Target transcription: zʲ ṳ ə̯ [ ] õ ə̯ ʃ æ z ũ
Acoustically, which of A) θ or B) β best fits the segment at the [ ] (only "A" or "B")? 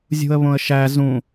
B